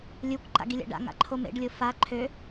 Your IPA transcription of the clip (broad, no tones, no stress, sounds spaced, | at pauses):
lʲ u kʷ ǃ a̰ ɡ i lʲ a̰ ɖ a̰ ŋ a̰ ǃʰ o m ḛ ɖ lʲ o f a ǃʰ ø